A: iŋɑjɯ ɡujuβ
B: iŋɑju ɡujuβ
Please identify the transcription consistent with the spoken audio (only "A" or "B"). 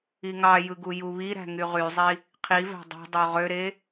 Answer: A